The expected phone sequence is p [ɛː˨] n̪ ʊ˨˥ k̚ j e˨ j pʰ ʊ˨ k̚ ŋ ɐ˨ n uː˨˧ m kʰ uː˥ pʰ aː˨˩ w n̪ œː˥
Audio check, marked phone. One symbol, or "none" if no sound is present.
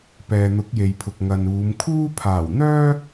ɛː˨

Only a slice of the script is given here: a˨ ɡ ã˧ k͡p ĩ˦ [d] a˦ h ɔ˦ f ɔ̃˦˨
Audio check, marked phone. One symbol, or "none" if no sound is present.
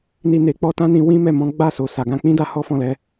d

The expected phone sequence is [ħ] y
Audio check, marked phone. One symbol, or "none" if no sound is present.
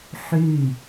ħ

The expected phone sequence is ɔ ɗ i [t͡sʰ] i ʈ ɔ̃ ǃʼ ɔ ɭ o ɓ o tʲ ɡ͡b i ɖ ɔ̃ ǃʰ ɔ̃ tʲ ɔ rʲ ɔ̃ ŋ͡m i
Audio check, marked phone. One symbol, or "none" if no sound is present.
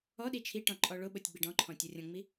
t͡ʃʰ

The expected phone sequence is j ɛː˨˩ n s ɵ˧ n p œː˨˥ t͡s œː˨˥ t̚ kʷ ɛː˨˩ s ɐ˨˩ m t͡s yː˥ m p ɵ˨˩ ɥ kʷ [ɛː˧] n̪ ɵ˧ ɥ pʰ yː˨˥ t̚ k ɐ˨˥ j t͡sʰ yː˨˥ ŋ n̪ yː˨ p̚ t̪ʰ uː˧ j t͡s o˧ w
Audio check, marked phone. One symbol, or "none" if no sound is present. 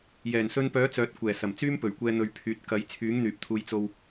ɛː˧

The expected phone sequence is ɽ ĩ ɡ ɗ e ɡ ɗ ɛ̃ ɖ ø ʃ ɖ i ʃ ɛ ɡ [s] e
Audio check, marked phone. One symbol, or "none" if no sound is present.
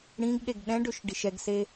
s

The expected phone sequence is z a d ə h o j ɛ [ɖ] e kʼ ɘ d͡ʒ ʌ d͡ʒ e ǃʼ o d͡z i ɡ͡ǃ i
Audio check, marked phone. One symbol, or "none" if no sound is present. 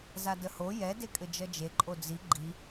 d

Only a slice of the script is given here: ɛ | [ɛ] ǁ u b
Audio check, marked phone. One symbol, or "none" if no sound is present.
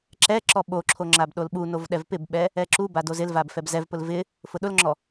ɛ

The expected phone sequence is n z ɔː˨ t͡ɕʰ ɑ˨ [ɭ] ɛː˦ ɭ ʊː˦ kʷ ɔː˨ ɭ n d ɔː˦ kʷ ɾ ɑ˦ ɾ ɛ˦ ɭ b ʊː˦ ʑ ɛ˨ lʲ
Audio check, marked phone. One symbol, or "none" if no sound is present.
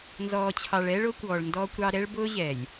ɭ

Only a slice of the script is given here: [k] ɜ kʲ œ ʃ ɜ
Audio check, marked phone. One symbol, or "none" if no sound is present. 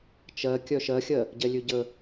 t͡ʃ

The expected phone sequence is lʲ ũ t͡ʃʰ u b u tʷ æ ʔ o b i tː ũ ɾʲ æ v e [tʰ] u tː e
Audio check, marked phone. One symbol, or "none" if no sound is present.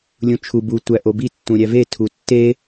tʰ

